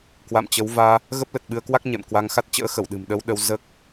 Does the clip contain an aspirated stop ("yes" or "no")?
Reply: no